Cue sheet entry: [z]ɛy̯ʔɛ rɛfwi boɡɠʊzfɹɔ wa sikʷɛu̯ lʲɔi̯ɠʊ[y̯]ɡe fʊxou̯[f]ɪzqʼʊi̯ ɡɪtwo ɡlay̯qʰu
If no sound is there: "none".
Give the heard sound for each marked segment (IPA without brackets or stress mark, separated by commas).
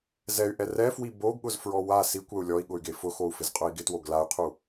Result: z, y̯, f